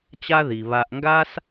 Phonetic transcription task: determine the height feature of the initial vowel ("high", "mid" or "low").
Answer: low